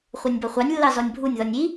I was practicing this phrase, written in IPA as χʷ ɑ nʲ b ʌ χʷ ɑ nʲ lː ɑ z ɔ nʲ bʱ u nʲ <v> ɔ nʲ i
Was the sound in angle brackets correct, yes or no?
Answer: no